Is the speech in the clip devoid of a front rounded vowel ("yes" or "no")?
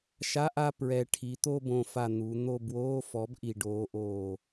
yes